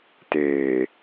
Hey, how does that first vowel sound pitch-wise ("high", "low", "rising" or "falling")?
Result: low